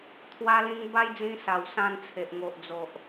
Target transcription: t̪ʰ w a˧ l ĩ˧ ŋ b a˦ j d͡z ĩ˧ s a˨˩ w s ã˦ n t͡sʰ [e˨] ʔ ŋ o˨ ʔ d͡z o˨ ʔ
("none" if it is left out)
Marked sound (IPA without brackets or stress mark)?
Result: e˨